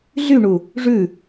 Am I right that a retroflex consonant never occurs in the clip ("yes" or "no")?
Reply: no